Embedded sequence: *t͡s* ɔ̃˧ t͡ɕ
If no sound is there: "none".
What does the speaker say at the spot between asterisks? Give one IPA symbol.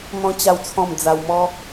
n̪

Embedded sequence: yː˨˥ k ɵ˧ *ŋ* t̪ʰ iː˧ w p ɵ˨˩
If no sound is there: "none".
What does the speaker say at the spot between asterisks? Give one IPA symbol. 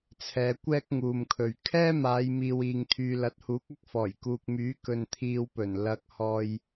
n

